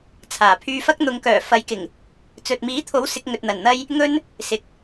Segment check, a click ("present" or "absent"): absent